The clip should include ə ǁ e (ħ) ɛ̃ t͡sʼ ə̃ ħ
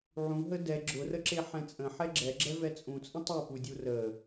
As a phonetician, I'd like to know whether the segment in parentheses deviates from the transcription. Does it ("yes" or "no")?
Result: no